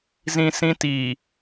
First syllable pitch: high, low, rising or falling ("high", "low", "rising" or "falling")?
high